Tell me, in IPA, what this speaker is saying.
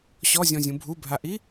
ɕ ɔ zʲ ɔ̃ zʲ ũ bʱ u bʱ a ʔ i

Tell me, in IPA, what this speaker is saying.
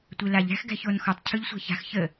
tʷ e l a ʎ æ̤ x ɡ æ̤ ç o n x ɔ tˤ cʰ ɯ ʎ sʷ æ̤ ç a̤ x ç ə

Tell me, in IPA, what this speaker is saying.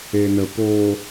e n ə p o

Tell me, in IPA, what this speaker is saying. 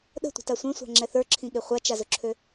ɗ ə̤ tʷ ə̤ t a sʷ ẽ sʷ a̤ ŋ͡ǁ ɛ θ ə˞ ǁʰ ĩ ɠ e χʷ a t͡ʃ a z ɵ ǁʰ ø

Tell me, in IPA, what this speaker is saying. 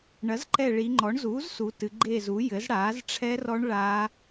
ɳ ɐ˩˥ z ǃ ɛ˦˨ ɭ i˩˧ ŋ͡ǃ ɔ˩˥ ɳ z uː˩˥ z s u˩˧ t ɨ˩˧ ɡ͡ǃ eː˦˨ z u˩˥ j ɘ˩˥ z ɽ aː˩˥ z ʈ͡ʂʰ ɛ˦˥ r ɔ˦˥ ɳ ɭ a˦˥

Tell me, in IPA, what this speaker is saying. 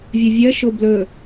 vʲ ɵ vʲ ɜ ʃ o b l ɵ

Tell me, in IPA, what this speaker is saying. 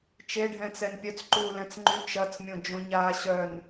t͡ʃ e ɖʱ ɛ̃ t͡s ɛ n pʲ œ t͡s ǃ uː l ɛ̃ t͡s ŋ͡ǃ y t͡ʃ ɐ t͡s mʲ õ d͡ʒ õ ɲ aː ɕ œ n

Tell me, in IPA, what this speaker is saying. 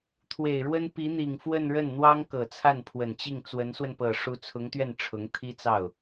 t̪ʰ w e˨˩ ɪ̯ ɻ w ə˥ n p i˧˥ n̪ i˨˩ ŋ f w ə˥˧ n ɻ ə˥˩ n n̪ w ɑ˥ ŋ k ɤ˨˩ t͡sʰ a˥˩ n pʰ w ə˨˩ n t͡ɕ i˥˩ ŋ t͡s w ə˧˥ n s w ə˧ n p ɤ˨˩ ʂ u˧˥ t͡sʰ ʊ˧˥ ŋ t̪ ɥ ɛ˥˩ n ʈ͡ʂʰ ʊ˧˥ ŋ t̪ʰ i˥ t͡s ɑ˥˩ ʊ̯

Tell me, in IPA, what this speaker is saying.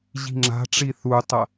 ʑ i̤ ŋ͡ǁ a̤ ʈ͡ʂ i θ u tˤ ɐ

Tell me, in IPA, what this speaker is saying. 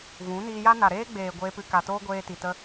v ũ˨˦ n iː˧ j a˦ n a˨ ɾ eː˦ ɡ͡b eː˨ ɡʷ eː˧ p ɨ˧ k a˨ t oː˦ ɡʷ eː˧ t i˨ t ə˦

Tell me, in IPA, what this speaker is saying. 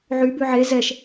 ʕ y b ʉ ʕ e z ɛ ʃ

